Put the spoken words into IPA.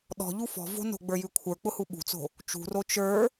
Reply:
ɗ ɔ̤ ʎ u f ɔ̤ v o̤ n o̤ ɡ͡b ə˞ j ʉ kʷʰ ə˞ k͡p ʊ h u ɓ ṳ t͡s o̤ | t͡ʃ ṳ r o t͡ʃ ə˞

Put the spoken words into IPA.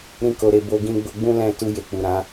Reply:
ɾ ĩ˦ k o˧ ɾ e˧ b o˦ ɡ ĩ˦ ɡ͡b o˦ ɡ͡b ũ˦ l ɛ̃˦˨ t u˧ j e˨ k͡p u˨ ɾ ã˨˦

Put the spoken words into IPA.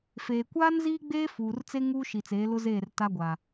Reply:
f eː˨ kʷ aː˦ n z iː˦ ɡ͡b eː˦ f uː˨ r t͡s e˦ ŋ uː˦ ʃ i˨ t͡s eː˨˦ l ʊ˦ z eː˦˨ r t a˦ ɡʷ a˨

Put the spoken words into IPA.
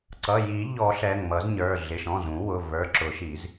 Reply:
ǀ ʌ˩˧˩ j i˨˩˦ ʎ ɔ˨˩˦ ɬ ɛ˩˧˩ ŋ m ʌ˨˩˦ z ɲ ə˞˩˧˩ ɮ ɪ˩˧˩ ʃ ɔ̃˩˧˩ z ũ˨˩˦ w ʊ˩˧˩ v ə˞˩˧˩ ǁ ʊ˨˩˦ ʃ i˨˩˦ z

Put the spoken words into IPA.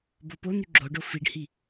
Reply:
b o p o n̪ y ɡ͡ǁ o ɖ o f i ɖ h i

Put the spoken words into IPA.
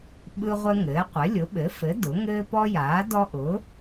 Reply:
ɓ ɯ˦ ʁʷ ɘ˦ ŋ ɘː˩˥ qʷ ɘ˩˥ lʲ ʊ˩˥ ɓ ɘ˩˥ f ɘ˩˥ d ʊ˩˥ ŋ ɘː˦ p ɔ˦ j aː˩˥ d ɔ˦ ʔ ʊː˩˥

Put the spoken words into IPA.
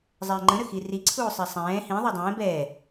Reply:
zˤ ɛː ŋ͡ǃ ə̃ ɾ ə x i r i ǀʰ uː sˤ ɛ sˤ ɛ̃ː h ĩ ðˤ ɛ dˤ ɛ̃ː b ɛː

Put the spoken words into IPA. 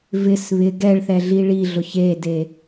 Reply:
v ɪ s β ɪ ɡ ɛ ɭ θ ɛ ɮ i ɭ i ɮ ʊ ç e d e

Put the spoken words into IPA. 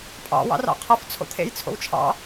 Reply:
pʼ ɑ̰ w ɑ̰ r ɑ̰ qʰ ʌ f t͡sʰ o̰ t̪ʰ ḛ j t͡sʰ o̰ w t͡ʃʰ ɑ̰

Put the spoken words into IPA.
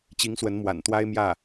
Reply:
t͡ɕ i˧˥ ŋ s w ə˧˥ n m w a̰˨˩ n t̪ w a˥ ɪ̯ m j ä˥˩

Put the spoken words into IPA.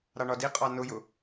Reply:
ɾ ɑ ɳ ɒ d i qʼ ɑ n ʊ j ʊ

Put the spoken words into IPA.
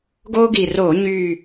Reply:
ɡ oː˦ ɡ i˨˩ r oː˧˩˧ ɲ y˨˩

